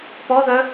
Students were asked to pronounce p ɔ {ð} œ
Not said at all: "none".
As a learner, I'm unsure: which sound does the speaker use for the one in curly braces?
ð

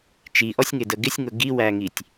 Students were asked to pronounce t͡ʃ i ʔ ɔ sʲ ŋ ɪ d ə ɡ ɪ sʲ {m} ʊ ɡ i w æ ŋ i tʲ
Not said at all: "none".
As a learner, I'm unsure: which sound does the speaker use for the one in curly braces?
ŋ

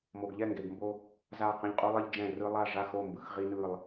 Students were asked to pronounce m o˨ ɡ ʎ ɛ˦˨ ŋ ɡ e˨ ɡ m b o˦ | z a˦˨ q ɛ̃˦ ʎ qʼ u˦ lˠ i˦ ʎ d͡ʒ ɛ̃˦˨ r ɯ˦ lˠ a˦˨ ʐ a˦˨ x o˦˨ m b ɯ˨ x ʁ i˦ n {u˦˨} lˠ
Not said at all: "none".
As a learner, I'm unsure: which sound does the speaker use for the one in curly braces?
ɯ˦˨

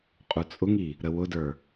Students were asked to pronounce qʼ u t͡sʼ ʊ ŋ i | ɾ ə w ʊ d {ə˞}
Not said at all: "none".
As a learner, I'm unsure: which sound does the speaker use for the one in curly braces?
ə˞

